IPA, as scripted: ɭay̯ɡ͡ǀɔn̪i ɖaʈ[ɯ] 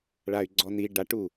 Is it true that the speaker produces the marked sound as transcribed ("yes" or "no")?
no